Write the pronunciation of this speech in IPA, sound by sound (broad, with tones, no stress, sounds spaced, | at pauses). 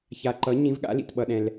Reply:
ç a˨ ǃ ʌ˨˥ ɲ ĩ˨˥ v ɠ a̰˨˥ l ḭ˨ t ɓ ʌ˨ ɗ ɛ̃˨ l